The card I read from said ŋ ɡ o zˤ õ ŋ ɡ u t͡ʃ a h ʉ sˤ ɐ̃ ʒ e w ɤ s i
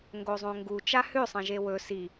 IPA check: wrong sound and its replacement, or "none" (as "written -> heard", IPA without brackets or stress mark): ɤ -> ɵ